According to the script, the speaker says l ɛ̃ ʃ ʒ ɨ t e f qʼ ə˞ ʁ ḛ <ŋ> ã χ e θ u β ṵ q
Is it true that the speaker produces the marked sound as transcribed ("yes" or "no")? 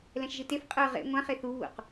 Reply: no